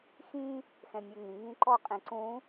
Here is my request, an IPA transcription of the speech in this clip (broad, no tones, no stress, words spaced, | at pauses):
xĩ | xɛ̃mʲɛŋĩ ŋĩǃɔ qʼĩǀũ